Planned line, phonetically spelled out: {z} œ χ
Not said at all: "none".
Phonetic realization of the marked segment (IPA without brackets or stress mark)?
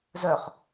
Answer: z